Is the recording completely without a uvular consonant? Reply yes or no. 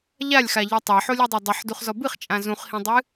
no